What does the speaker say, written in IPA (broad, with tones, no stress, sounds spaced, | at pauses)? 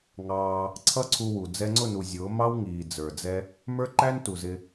ŋ ɑː˧ | ǀʰ ʌ˦ ǀʰ u˧ w u˨ d͡z ɛ˧ ŋ͡ǀ ʊ˦˨ n u˨ zʲ ʊː˨˦ m ɑ˦ w ŋ iː˨ d͡z ə˞˨ d͡z ɛ˦ | m ə˞˦ ǃ æ˦ n t u˨ z ɪ˧